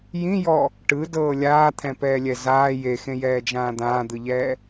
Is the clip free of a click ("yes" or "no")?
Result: yes